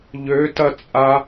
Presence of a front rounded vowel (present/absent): present